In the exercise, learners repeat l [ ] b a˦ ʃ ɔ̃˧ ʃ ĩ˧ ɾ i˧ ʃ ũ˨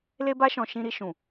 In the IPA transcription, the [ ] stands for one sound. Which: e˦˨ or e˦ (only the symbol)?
e˦